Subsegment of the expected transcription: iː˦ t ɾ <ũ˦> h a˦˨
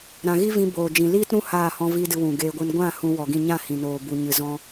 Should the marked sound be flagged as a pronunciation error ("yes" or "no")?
no